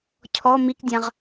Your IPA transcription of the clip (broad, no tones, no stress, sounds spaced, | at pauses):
cʰ ɔ m i k dʲ ã ʁ